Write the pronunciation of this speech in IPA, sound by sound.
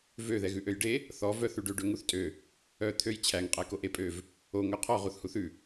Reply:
vø ðɛɣʉʔøjɖe | θɔ vœθʉɖø ɖøŋuθtʼø | œ t̪ʰøj t͡ɕʰæŋ qʼækoʔe pʼøv | o ŋœqʰɔ ʁuθhuθʉ

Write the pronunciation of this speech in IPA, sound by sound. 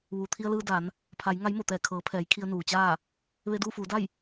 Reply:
ʋuː˩t̪ʰi˧ə̯lɯː˧ da˩˧n | pʰa˩˧j ŋa˧˥jmo˧˩t̪ɛː˧˩ kʰɤː˩˧pʰɛː˩˧j kʰi˧ə̯ nuː˩t͡ɕaː˥˨ | ʋe˧duː˥˨fuː˩˧da˥˨j

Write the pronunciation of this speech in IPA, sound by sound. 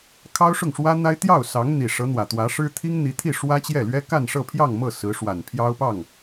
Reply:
kʰɑ˥ʊ̯ʂʊ˥˩ŋʂwä˥n̪a˥ɪ̯ t̪jɑ˥˩ʊ̯sɑ˧˥ŋ n̪i˨˩ʂɤ˧˥n̪wä˨˩t̪wä˧˥ ʂɻ̩˥ t̪ʰi˥ŋn̪i˧˥t̪ʰi˥˩ ʂwä˥t͡ɕjɛ˥˩lɥɛ˥ ka˥˧nʂɤ˥˧pʰjɑ˥˧ŋmɤ˥˩ sɹ̩˧˥ʂwa˨˩n pʰjɑ˥ʊ̯pɑ˥˩ŋ

